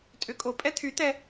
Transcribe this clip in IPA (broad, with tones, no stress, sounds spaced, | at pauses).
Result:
tʼ ʏ˨˥ kʼ o˩˧ pʼ ɛ˥ t̪ʰ y˨˥ t̪ ɛ˥